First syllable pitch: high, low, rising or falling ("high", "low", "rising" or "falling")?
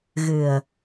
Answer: low